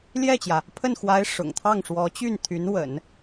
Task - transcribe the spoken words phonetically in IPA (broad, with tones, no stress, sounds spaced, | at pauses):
l j ɛ˥˩ t͡ɕ j ä˩ | pʰ ə˥˩ n x w a˧˥ ɪ̯ ʂ ʊ̰˨˩ ŋ t̪ʰ ɑ˥˩ ŋ ʂ w ɔ˧˥ t͡ɕ y˥˩ n t̪ʰ y˧˥ n w ə̰˨˩˦ n